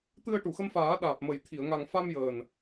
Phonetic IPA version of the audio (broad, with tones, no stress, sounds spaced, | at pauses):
t̪ ɨ˧ ə̯ ʈ u˨˩˨ x ə˧ m f aː˨˩˦ ɗ aː˨˩ p̚ m ə˨˩ j t̪ʰ i˨˩˨ ə̯ ŋ a˨˩ ŋ f a˧ m j əː˨˩ n